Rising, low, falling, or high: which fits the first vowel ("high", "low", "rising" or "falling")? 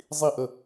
falling